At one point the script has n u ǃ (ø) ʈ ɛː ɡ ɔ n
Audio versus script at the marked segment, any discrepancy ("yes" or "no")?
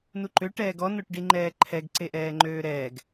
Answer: no